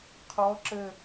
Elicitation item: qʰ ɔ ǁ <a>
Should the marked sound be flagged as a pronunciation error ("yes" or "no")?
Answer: yes